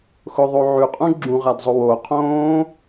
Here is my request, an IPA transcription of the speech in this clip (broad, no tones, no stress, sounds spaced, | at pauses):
x ʊ ðˤ o ʕ ʉ qʼ ũ ɡ͡ǁ ũ ʁ a d zˤ ʊ w o qʰ õː